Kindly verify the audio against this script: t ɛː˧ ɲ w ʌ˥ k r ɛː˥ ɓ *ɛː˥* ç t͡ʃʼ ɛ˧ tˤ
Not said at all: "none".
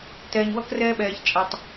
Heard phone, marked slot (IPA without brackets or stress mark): ɛː˧